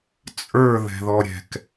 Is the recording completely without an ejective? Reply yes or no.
no